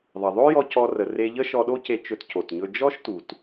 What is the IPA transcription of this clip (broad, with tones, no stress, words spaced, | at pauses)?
ðˤə˩ðˤo˥jɔ˧ cɔ˧rə˩re˧ ʎə˥ʃɔ˧ɗo˥ ce˧t͡ʃɵ˧t co˩tɲɵ˧ d͡ʒɔ˥ʃtu˩t